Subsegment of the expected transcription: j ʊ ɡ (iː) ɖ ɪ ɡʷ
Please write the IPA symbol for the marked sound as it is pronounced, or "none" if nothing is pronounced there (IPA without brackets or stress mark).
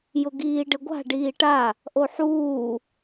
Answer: iː